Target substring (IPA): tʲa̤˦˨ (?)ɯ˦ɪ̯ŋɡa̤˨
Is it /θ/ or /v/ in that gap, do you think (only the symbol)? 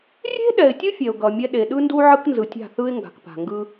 θ